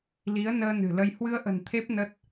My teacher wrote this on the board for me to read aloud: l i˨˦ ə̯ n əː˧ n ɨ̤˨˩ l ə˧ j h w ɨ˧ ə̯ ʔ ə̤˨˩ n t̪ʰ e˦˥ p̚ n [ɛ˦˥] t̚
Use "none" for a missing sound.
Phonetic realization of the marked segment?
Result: ə˦˥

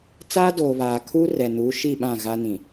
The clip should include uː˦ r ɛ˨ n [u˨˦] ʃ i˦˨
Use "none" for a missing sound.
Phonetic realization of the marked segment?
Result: u˨˦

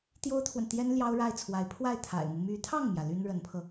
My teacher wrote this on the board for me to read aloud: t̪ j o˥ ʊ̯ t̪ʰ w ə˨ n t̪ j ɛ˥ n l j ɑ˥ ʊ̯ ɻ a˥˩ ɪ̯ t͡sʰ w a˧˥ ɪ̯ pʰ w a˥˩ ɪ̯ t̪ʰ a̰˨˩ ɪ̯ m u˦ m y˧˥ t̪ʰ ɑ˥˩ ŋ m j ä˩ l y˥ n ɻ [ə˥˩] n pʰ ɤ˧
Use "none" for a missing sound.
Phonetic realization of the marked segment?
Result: ə˧˥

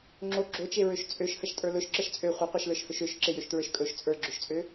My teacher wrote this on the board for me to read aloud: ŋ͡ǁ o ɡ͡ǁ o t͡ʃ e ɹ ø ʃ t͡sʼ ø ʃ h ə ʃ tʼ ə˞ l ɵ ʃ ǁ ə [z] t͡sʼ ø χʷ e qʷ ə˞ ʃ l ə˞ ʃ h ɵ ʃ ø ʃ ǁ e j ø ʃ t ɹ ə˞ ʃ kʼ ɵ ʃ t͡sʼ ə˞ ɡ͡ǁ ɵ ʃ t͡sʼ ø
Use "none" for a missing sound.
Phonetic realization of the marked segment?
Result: ʃ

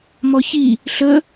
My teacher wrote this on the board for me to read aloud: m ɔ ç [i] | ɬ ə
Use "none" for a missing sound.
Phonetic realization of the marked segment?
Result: i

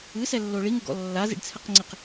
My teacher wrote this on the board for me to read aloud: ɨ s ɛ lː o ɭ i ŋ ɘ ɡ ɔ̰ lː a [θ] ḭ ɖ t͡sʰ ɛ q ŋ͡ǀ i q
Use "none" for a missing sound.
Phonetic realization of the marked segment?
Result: z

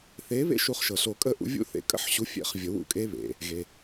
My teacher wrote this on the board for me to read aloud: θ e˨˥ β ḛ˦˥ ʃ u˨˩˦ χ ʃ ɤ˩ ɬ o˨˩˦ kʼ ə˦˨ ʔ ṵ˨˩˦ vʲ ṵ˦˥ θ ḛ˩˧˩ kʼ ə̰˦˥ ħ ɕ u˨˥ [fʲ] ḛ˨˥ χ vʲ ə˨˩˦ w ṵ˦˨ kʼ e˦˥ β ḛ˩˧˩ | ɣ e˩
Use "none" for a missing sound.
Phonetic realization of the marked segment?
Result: fʲ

